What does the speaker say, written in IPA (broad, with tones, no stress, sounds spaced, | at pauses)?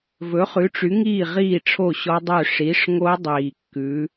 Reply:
v ɵ˩˥ χ ʉ˩˥ ʈ͡ʂ y˩˥ ŋ iː˥˩ ʁ iː˥˩ ʈ͡ʂʰ o˥˩ ɕ ɔ˦˥ dˤ ø˥˩ ʂ i˩˥ ʂ ŋ o˦˥ dˤ iː˨˩ kː ʉ˩˥